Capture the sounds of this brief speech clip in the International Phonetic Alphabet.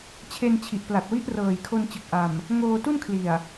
t͡ɕʰe˧nt͡ɕʰi˨˩ʔpla˨˩t̚wi˦˥ʔ rɤː˨˩jkʰo˧nt͡ɕɯ˨˩k̚ʔa˨˩m | ŋoː˧tu˥˩nkʰli˨˩a̯

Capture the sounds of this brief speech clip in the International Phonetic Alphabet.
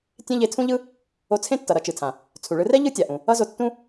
tʲẽ˥ʎe˧tʰũ˥ʎɯ˥ | o˧t͡sʰẽ˥tːʌ˩ ɾʌ˧t͡ʃɯ˩tʰã˩ | t͡sʰu˩ɭɯ˧rɛ˥ ʎɯ˥tʲa˩ʔũ˩ | ʌ˥zo˧tːũ˥

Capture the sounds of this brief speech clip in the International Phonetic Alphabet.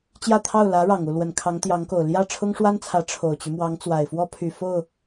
t͡ɕjä˥˧t̪ʰɑ˥˩ʊ̯ lä˧˥ ɻɑ˨˩ŋ u˥˩lwə˨˩nkʰɑ˧˥ŋ t̪jɑ˧˥ŋko˨˩ʊ̯ ljä˥˩ ʈ͡ʂʰʊ˥ŋʂwa˥nt͡sʰä˧˥ ʈ͡ʂʰo˨˩ʊ̯t͡ɕy˦mwɑ˧˥ŋ t͡swa˨˩ɪ̯fwɔ˥pʰy˨˩ fo˥˩ʊ̯

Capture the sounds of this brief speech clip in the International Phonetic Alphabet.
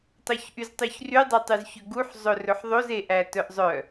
tˤœçʔyztˤyçry dˤøtˤyzçøɡuħ zˤɵrɵħðˤoz eʔætœʔzˤœ

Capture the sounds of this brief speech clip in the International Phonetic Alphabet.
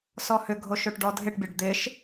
sɔhʏɡʱo ʃoʈɖɔdʱɪʈbʲɐɖ d̪ɪʃ

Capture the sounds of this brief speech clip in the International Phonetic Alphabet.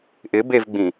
ʔɪbevɡ͡bĩ

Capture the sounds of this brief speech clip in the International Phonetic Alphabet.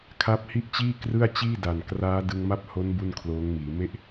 kʰa˦˥p̚hi˥˩ʔt͡ɕiː˥˩krɯ˥˩a̯ t͡ɕiː˥˩da˨˩nkraː˦˥ dɯ˧ŋma˥˩p̚ho˦˥n bu˥˩nkʰloː˦˥ŋmiː˩˦ me˥˩ʔ

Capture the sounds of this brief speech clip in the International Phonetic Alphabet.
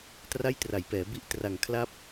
tra˥˩jtra˩˦jpɛː˩˦ bi˥˩ʔtra˨˩ŋ kʰla˥˩p̚

